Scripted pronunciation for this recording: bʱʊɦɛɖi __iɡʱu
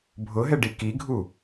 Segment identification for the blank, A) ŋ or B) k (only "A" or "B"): B